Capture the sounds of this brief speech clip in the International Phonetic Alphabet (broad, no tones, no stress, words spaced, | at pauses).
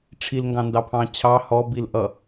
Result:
ʈ͡ʂʰilŋɡɑ̃ndɑpʰɑ̃ t͡ɕʰɑ hɔbil ʔʌ